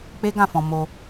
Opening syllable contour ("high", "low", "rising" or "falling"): high